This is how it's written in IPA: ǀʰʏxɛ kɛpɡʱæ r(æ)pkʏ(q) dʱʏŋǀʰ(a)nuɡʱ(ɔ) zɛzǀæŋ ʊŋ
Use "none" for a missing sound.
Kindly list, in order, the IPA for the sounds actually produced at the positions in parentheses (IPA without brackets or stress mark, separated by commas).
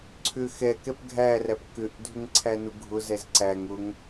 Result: æ, ʔ, æ, ʊ